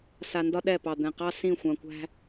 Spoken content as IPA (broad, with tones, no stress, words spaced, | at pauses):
sa˨ndɒ˦ ɗɛ˦˨pɑ˨d̪ɛ̃˨ qɑ˦ sĩ˦˨ xʷã˨kʷæ̤˦